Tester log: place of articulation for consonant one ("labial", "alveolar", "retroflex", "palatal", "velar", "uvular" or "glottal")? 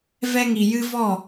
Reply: labial